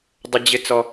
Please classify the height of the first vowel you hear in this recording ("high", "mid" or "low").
mid